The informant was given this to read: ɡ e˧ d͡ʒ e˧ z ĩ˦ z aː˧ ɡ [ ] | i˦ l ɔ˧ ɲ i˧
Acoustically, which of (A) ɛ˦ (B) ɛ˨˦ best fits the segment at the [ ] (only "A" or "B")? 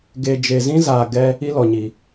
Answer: A